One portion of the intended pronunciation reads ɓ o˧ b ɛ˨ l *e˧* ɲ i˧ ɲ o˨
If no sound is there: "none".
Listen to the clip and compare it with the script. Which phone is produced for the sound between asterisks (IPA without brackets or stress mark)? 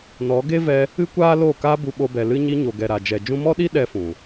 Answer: ɨ˧